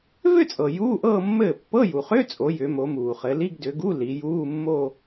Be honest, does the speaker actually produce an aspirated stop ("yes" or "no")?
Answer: no